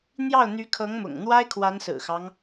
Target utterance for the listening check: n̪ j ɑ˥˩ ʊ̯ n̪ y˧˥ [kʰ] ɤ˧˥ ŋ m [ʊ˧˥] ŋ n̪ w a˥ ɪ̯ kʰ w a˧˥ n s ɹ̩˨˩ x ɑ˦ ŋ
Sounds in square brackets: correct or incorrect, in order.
correct, incorrect

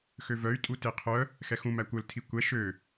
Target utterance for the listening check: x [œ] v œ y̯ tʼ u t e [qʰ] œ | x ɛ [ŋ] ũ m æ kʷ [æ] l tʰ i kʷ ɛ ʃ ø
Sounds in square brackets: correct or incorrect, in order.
incorrect, correct, incorrect, incorrect

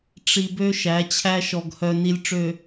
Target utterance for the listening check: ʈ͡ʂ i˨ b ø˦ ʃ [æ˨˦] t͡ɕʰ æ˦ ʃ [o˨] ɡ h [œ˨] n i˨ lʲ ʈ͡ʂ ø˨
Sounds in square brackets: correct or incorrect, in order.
correct, incorrect, correct

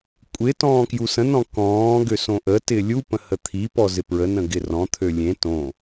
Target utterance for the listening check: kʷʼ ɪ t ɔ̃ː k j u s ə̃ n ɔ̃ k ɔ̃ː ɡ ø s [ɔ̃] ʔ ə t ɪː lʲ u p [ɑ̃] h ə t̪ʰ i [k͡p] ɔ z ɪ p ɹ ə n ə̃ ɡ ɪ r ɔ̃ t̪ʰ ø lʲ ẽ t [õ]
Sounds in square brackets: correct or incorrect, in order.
incorrect, incorrect, incorrect, correct

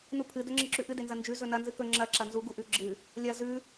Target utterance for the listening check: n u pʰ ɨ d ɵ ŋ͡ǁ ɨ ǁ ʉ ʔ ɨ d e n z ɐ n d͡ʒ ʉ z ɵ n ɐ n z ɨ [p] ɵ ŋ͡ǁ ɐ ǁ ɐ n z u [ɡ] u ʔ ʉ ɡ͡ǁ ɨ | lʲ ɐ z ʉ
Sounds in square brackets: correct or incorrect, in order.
incorrect, correct

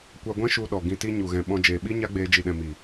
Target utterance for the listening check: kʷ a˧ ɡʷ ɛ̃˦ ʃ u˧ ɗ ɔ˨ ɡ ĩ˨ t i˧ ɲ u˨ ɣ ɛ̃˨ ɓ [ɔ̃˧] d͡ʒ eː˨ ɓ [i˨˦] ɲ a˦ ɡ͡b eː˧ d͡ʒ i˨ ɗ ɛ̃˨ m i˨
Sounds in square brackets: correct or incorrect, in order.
correct, incorrect

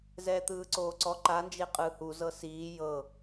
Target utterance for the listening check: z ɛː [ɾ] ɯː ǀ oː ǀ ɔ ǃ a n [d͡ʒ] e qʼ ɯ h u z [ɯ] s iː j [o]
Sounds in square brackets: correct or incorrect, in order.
incorrect, correct, incorrect, incorrect

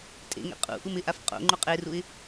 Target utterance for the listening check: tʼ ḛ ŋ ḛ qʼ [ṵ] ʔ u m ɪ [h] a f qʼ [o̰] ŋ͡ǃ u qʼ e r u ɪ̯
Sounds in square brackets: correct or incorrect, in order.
correct, incorrect, correct

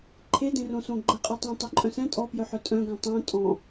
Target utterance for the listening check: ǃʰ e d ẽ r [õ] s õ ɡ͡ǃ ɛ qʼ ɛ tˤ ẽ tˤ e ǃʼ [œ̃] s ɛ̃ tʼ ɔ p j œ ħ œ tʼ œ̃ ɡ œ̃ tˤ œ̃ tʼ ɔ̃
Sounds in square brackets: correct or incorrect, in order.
correct, correct

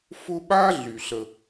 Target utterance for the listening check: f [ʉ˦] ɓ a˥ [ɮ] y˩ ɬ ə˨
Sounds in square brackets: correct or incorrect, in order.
incorrect, correct

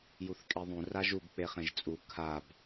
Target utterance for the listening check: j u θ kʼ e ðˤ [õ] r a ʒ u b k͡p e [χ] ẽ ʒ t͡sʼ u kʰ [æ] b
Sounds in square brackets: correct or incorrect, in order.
incorrect, correct, incorrect

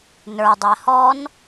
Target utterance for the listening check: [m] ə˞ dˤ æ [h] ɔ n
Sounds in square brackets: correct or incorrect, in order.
incorrect, correct

